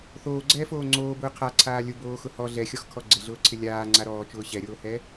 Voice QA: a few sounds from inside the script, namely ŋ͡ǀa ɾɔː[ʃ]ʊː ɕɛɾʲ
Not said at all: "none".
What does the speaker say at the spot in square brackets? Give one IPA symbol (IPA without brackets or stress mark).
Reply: t͡ʃ